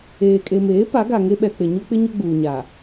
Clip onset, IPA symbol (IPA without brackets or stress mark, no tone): eː